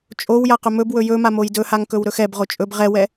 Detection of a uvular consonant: present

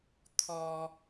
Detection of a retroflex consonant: absent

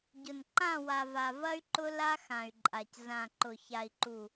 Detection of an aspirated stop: absent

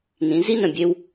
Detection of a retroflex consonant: absent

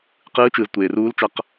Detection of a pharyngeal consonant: absent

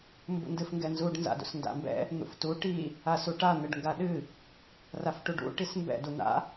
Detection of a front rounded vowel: absent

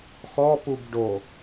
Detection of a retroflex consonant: present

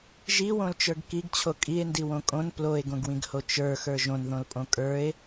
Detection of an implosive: absent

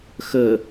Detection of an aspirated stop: absent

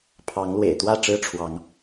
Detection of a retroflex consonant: present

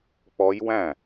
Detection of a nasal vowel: present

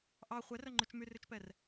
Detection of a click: present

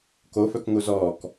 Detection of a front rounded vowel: present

